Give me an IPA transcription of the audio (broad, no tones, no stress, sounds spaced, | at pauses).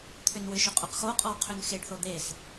t̪ʰ ʏ n w ʏ ʃ ʏ qʼ u q x o qʼ ɔ w qʰ ʏ n x e ɖ θ o d̪ e s